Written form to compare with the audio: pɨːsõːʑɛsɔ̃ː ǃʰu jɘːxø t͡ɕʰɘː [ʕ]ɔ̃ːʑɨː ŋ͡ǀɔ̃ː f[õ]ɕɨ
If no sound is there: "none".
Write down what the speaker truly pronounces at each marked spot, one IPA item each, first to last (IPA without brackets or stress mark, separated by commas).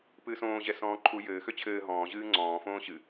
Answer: ɦ, õː